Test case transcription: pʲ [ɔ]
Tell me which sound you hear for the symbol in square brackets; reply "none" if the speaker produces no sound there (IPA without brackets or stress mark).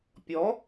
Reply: ɔ